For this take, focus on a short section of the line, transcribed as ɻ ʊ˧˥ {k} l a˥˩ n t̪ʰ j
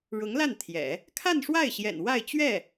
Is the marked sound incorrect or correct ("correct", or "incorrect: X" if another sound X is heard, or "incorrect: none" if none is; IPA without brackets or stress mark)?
incorrect: ŋ